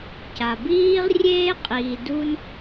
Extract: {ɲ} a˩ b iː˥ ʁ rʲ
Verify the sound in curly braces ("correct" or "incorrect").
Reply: incorrect